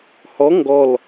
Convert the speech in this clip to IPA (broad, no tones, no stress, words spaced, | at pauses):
hɔ ŋɡɔl